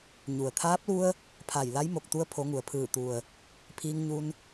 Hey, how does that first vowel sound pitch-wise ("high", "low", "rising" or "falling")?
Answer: low